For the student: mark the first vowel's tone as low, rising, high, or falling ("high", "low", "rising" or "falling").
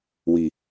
low